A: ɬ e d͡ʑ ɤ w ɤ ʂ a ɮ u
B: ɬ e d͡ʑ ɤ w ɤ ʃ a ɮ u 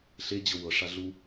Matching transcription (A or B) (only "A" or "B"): A